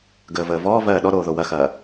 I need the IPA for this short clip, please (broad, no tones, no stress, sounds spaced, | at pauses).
ɡ əː v əː v ɔː v ɜː ɗ ɔ ɾ oː ð o w ɐ x ɐː